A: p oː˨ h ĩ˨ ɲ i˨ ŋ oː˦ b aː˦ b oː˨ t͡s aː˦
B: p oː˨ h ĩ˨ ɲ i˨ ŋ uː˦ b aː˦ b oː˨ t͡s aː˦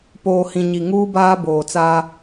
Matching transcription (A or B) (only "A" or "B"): B